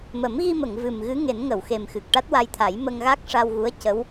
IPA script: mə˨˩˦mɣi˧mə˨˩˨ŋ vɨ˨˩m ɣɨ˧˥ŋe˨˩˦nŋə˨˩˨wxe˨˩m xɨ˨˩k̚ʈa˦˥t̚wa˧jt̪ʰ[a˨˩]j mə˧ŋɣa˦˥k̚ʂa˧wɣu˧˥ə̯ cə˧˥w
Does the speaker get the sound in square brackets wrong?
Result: yes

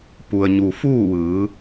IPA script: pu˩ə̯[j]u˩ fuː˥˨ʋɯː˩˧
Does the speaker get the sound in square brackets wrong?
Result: yes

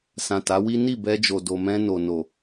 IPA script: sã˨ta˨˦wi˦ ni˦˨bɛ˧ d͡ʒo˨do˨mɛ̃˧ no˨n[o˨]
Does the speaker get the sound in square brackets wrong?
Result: no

